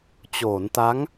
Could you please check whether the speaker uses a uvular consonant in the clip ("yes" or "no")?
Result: no